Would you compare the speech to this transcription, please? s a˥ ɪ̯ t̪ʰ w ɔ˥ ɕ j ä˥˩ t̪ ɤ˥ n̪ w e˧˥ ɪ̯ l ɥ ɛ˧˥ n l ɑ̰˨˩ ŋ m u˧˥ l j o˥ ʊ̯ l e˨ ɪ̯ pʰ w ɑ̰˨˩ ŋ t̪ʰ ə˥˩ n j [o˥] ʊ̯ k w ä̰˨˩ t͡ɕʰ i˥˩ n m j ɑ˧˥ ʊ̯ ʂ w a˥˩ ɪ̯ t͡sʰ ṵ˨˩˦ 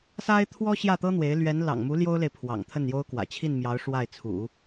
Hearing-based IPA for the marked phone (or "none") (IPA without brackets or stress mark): o˥